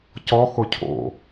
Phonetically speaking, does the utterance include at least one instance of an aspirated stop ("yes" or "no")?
yes